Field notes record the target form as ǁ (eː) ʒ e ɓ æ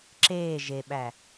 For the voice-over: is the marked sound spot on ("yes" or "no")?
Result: yes